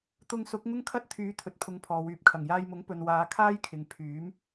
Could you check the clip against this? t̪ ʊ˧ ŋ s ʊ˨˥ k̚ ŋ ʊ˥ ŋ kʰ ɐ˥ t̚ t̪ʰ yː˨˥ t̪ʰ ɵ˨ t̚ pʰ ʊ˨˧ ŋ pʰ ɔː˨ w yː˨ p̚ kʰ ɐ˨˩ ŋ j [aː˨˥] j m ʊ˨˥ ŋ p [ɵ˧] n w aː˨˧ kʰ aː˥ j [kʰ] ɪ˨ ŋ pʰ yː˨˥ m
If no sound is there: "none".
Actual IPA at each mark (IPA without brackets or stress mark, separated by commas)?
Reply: aː˧, ɵ˨, kʰ